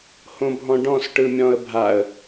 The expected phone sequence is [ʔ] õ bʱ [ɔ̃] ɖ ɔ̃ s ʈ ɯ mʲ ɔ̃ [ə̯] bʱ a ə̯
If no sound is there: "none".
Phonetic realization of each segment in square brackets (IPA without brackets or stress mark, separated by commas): h, ɔ̃, ə̯